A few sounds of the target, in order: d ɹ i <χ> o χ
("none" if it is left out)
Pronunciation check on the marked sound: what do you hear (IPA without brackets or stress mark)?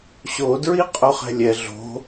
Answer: qʼ